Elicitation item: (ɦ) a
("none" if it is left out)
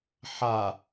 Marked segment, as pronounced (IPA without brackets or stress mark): ħ